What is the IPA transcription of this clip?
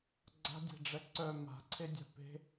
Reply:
ɡ͡ǀa̤dʲɛ̤ɖ͡ʐɛ ǀœ ma̤ǀʰedʲa̤ pe̤

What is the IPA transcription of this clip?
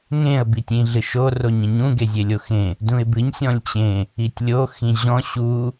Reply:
ŋẽə̯ bitʲĩɮɨʃo roɲĩɲũ ɡezʲelʲoxẽ | dũɪ̯bɨɲ sʲɔ̃lʲt͡ɕẽ | itʲlʲo xĩʑɔ̃ ɕu

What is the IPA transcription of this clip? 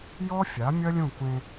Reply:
jɔ˦fʲa˨˦ mʲɐ˦lʲũ˦˨kʷẽ˦

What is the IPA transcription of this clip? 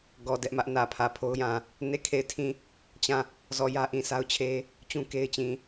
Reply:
ɡɔ˨ dɛ˦ʔmä˦ʔ nä˨pʰä˨pʰo˦ʊ̯jã˨ | ne˦˨kʰe˦˨ɪ̯tʰĩ˦˨ | t͡ɕã˦˨ | zɔ˦˨ jä˦ʔĩ˨sa˦ʊ̯t͡ɕʰe˦ | t͡ɕũ˦ke˦ɪ̯t͡ɕĩ˨

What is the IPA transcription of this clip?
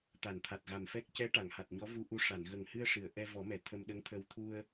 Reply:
t̪a˨˩˨nt̪ʰa˨˩t̚ɣa˨˩mfɛ˦˥k̚ cɛ˧˥ ʈa˨˩˨ŋha˨˩t̚ɲɔ˧˥ vu˧˥ʔu˧ ʂa˨˩˨nɣə˨˩ŋhɨ˧ə̯ ʂɨ˨˩˨ə̯ʔɛ˧vɔ˨˩˦mɛ˨˩˨ t̪ʰə˧m ɗə˧˥ŋt̪ʰə˧w t̪ʰu˧ə̯

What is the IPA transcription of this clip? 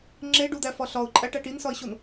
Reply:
ŋ͡ǁeɖud̪æfɒ ɬɒʊ̯ǃʼæʈæʈ insɒɪ̯ɕon

